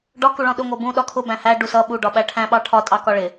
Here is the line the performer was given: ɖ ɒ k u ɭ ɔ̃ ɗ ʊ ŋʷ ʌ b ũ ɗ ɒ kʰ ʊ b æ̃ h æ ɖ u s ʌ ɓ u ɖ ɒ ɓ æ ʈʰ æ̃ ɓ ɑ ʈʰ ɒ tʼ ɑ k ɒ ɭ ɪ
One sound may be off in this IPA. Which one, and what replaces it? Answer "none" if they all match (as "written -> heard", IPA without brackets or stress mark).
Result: none